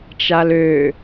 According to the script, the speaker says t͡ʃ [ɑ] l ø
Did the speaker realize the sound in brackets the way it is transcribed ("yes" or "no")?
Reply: no